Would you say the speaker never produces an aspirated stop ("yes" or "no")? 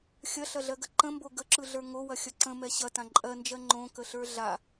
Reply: yes